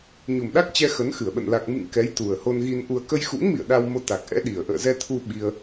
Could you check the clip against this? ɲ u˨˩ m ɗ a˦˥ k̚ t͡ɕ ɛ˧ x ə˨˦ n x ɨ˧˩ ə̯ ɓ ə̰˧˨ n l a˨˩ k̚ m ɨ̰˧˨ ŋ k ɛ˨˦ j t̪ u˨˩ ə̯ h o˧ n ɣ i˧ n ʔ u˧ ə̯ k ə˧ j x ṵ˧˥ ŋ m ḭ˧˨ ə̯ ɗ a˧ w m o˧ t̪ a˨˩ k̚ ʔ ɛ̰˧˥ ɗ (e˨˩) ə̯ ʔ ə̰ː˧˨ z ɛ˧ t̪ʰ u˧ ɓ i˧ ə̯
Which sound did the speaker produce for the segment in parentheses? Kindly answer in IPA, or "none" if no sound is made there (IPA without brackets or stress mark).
i˨˩